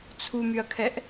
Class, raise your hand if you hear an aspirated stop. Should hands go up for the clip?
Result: yes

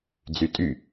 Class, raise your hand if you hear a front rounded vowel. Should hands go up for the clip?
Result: yes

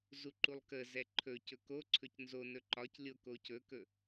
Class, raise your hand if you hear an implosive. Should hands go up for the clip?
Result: no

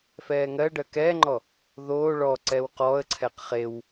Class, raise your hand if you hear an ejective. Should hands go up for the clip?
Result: no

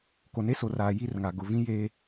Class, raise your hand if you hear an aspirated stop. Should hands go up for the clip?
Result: no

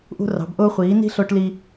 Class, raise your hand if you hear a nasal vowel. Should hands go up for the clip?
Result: no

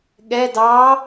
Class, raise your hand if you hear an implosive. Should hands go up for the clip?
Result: yes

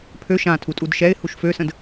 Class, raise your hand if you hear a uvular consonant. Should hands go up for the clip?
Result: no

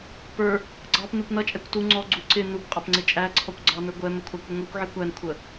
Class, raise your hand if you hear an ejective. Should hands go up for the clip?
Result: yes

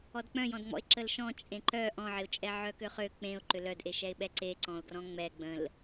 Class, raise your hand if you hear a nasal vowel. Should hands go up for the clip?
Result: yes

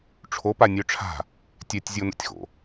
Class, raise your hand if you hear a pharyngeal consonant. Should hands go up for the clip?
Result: no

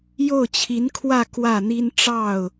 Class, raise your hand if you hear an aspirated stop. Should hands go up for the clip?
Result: yes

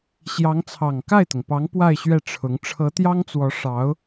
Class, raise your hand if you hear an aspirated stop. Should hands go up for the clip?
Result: yes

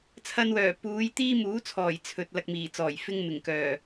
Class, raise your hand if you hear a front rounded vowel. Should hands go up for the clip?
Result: yes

